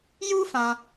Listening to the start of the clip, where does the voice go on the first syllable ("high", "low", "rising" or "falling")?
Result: high